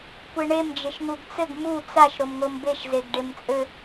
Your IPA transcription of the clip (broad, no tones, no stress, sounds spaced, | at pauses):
kʷ e ɳ e m d͡ʒ ɘ ʃ ŋ u ɡ t͡s ɘ ɡ m u t͡s a ʃ ɾ o m ŋ o m b e ʃ z e ɡ ɖ e m t͡sʼ ɘ